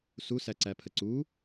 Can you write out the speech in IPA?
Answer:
s u s æ ǀ æ pʰ ə ǀ u

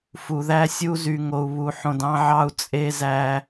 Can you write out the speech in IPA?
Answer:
f u˨ ð æ˦ sʲ u˦ z y˨ ŋ o˨ u̯ β u˨˦ ħ õ˨ d ɑ̃˦ ʕ ɑ˦ u̯ t͡sʼ e˦ z æ˦

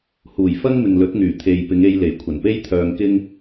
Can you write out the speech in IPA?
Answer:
h uː˨˩ j f ɐ˥ ŋ m ɪ˨ ŋ l ɵ˨˥ t̚ ŋ yː˨˩ t̪ʰ e˨ j p ɪ˨˧ ŋ e˧ j l e˨˩ j kʷʰ ɐ˨˩ n p e˥ j t̪ʰ œː˧ ŋ k ɪ˥ ŋ

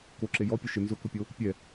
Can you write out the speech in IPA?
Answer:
k o ǁ e j ɔ pʲ ʊ ʃ ɪ n z ʊ k ʊ pʲ o | pʲ ɛ

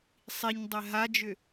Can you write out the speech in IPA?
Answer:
sˤ i ɲ dˤ ɛ ɦ a d͡ʒ ʏ

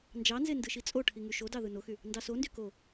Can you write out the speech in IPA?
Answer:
n d͡ʒ ɑ n z e n d ɯ ʃ i t͡sʼ o ʈʰ i ŋ y ʃ o d ɑ ð ɯ n o x y | n d ɑ s o n d y k o

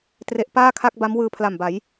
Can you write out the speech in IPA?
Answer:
t r e˦˥ ʔ p aː˥˩ kʰ a˥˩ k̚ b a˦˥ m w ɯː˧ pʰ l a˨˩ m b a˩˦ j

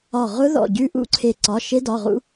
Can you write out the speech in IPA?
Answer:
ɒ˧˩ ʁ ʊ˦˥ ð ɔ̰˧˩ ɟ ʉ˦˥ ʔ ṵ˦˥ ǀʰ e˧˩ ǀ ɒ˩˧˩ ʃ e˦˥ d ɒ˩˧˩ ʁ ṵ˦˥

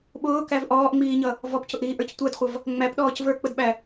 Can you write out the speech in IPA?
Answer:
ɓ ʊː k æ v ʔ ɔː ʔ ŋ͡m iː ɲ ʌ | v ɔ p c ʊ ʔ ɾ iː ʔ ə˞ c tʷ æ d χʷ ʌ v | ŋ͡m æ p ɗ ɔː c v ə˞ k͡p ə d ɓ æ

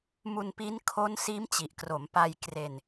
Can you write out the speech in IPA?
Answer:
m u˧ n p i˦˥ n kʰ o˦˥ n s iː˦˥ m t͡ɕ i˨˩ ʔ k r o˩˦ m p a˧ j k r e˧ n

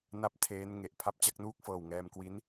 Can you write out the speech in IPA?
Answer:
n a˥˩ p̚ tʰ eː˦˥ n ŋ e˨˩ ʔ pʰ a˦˥ p̚ t͡ɕ a˥˩ k̚ n uː˥˩ k̚ f ɤː˨˩ w ŋ ɛː˧ m k w i˦˥ n

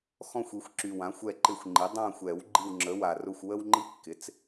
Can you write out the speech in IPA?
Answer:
x ɔ̃˦˨ xʷ i˩˥ xʷ ǁ y˨˩ w ã˩˥ xʷ ɛ˦˨ ǃ ɪ˦˨ xʷ ŋ͡ǃ i˩˥ dˤ ã˦˨ xʷ ɛ˨˩˦ w ɡ͡ǃ i˦˨ w ŋ͡ǁ ə˩˥ w a˨˩ r ʊ˦˨ xʷ w ə˦ w ŋ͡ǃ i˦ kː ɪ˩˥ t͡s

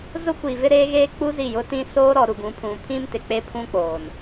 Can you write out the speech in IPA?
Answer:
z ʊ˦ kʷ i˨ v ɪ˦ ɾ eː˦ ɣ eː˦ k͡p u˦ z i˦˨ j ʊ˦ t ĩ˦ s oː˦ ɾ ɔ˨ ɾ u˨ ɡ ũ˨˦ pʰ ũ˨ pʰ ĩ˦ m t ɪ˨ k͡p e˦ pʰ ũ˦ k͡p oː˨ n

